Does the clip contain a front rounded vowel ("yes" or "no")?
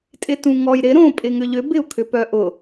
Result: yes